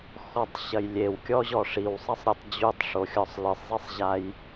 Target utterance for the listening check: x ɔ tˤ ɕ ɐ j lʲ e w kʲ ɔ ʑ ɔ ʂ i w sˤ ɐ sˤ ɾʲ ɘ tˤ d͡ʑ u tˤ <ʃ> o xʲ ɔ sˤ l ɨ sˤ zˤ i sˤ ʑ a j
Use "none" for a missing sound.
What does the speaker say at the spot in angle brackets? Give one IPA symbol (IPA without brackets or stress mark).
ʂ